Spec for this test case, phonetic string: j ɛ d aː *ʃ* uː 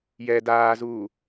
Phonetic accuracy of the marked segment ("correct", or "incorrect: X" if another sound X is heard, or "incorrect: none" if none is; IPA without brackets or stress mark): incorrect: z